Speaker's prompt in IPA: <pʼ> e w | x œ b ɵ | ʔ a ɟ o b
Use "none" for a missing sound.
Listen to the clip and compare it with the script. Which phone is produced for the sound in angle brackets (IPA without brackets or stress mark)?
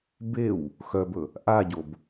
b